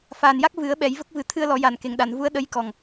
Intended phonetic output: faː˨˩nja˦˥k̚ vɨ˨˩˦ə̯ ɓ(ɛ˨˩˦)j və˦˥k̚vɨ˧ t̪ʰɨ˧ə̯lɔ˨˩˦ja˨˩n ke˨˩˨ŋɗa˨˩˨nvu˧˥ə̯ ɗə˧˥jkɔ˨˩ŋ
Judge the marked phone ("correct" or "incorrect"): correct